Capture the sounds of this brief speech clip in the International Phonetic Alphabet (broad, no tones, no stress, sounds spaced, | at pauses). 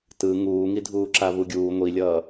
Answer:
t ɯ ŋ uː ŋ i dʱ uː ǁ a v u ɡʲ uː ŋʷ i lʲ ʌː